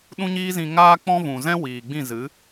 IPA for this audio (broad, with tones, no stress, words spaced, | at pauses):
ɗũ˦ɲiː˦zĩ˧ ŋaː˦k͡pɔ̃˦ vũ˨zɛ̃˦ wiː˨ɡ͡bĩ˦˨ zɨ˨˦